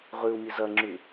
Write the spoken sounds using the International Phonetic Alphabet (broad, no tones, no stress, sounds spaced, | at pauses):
ʁ ʉ u̯ mʲ ɨ z ɐ ŋ͡ǁ ʉ